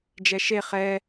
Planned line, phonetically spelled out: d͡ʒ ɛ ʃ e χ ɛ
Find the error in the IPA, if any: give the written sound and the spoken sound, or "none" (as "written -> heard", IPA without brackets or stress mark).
none